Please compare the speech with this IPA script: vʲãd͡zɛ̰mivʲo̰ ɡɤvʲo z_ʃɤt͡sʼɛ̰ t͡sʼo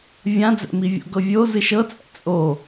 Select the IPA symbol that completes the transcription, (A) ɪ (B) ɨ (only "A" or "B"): B